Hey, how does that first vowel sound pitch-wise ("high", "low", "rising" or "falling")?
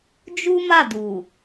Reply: high